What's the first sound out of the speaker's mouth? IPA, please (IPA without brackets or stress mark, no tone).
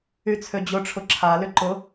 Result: y